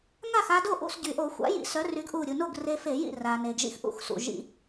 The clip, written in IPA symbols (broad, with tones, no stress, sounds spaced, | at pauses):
ŋ a˥˩ x a˧ d o˥˩ ʔ ṵ˥˩ s ɟ y˩ ʔ o˧˩˧ xʷ a̰˨˥ j ḭ˧˩˧ s œ˨˥ r y˨˥ ɡ ʔ u˧˩ ɾʲ u˩ n o˥˩ ɡ r e˧ f e˧˩˧ j ḭ˥˩ r a˩ n e˩ ɡ ʒ ḭ˧ x ʔ ṵ˨˥ x s ṵ˩ ʒ ḭ˧